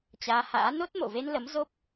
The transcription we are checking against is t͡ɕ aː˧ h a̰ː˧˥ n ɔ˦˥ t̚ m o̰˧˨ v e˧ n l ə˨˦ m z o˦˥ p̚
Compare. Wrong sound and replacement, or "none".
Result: ɔ˦˥ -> o˦˥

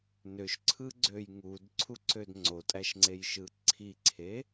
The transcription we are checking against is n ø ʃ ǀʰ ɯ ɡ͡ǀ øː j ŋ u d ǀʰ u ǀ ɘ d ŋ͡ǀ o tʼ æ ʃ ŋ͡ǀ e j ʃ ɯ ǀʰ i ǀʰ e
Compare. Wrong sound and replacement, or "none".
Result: ɘ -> ø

